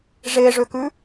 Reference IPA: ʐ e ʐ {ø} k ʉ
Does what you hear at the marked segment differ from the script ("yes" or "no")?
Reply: no